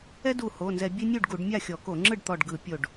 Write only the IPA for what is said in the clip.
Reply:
ɛ˦du˧˩ ho˩˧˩nzɛ˧˩˧ bʲe˦nʲu˥˩ɖɡu˧˩˧ɖmʲa˥˩ xʲɔ˧˩˧ko˧˩˧ŋ͡ǁɯ˥˩ɖ t̪ɔ˧˩ɖɡɯ˧˩˧ pʲo˧˩ɖ

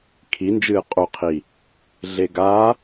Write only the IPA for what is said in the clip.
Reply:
kʰind͡ʒɨː qʼoqʰi | ɮeɡa

